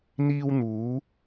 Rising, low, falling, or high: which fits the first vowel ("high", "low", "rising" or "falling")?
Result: high